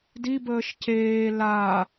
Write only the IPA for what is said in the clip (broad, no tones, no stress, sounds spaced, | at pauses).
d i b əː ʃ c eː l aː